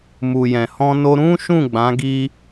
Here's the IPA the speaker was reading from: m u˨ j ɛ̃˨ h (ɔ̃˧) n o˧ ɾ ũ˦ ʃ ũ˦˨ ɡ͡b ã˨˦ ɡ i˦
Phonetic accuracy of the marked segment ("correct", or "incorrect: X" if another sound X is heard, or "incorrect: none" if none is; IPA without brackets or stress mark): correct